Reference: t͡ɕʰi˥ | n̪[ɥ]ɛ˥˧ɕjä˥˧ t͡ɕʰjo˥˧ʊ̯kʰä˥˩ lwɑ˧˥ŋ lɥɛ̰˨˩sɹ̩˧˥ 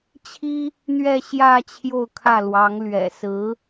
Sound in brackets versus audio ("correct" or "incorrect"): correct